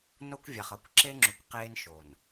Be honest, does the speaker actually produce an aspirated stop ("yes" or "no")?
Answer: no